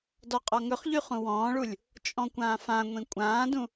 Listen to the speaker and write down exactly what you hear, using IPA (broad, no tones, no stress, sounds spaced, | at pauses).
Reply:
d ɔ qʼ ɔ ŋ ɵ χ ʎ y χ ũ w ɔ̃ː ɭ u lʲ | t͡ʃʼ ɔ̃ kʷ ãː f ã ŋʷ ĩ kʷʼ ãː d ũ